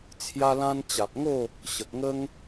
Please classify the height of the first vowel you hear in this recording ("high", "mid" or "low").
low